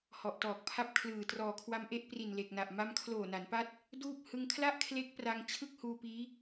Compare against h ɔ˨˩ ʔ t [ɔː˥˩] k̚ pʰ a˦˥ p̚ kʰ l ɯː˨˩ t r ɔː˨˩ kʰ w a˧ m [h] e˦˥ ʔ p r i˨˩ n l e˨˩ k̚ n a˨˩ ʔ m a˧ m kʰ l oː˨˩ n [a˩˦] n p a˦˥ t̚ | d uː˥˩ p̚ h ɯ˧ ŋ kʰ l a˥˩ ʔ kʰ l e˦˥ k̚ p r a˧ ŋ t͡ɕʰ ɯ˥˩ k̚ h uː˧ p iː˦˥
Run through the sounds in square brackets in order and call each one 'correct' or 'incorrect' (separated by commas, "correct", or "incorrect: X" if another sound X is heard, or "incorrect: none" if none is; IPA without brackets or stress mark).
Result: incorrect: ɔː˨˩, incorrect: ʔ, correct